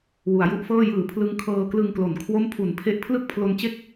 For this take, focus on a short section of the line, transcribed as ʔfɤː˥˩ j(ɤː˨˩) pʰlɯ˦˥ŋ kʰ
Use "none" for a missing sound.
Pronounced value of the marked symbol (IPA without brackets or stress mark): ɯː˨˩